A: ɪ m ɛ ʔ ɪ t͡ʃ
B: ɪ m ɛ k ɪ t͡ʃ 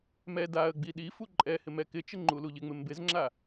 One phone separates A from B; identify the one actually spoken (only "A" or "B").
B